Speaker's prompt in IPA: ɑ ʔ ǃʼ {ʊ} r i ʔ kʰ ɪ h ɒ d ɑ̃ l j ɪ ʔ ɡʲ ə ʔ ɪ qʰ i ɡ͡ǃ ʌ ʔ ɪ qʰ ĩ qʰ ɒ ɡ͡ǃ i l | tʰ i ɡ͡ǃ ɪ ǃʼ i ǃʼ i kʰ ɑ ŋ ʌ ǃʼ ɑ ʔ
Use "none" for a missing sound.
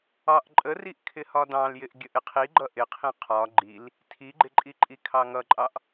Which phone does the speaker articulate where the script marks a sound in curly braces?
ə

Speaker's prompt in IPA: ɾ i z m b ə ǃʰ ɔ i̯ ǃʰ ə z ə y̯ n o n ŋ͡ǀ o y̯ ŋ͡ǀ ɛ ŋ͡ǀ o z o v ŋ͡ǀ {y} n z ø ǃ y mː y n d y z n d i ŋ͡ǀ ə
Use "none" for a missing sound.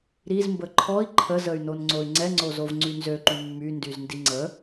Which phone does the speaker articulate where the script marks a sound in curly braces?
y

